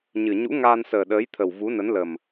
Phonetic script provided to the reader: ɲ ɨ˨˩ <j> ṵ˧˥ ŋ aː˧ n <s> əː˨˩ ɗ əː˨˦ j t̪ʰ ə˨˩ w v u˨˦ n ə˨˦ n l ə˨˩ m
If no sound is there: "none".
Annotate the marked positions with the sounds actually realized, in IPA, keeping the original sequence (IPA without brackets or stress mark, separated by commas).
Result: ɲ, s